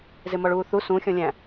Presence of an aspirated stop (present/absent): absent